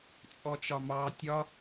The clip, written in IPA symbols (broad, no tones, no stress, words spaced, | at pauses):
t͡sʼɔt͡ʃɒmɑ tʲɒ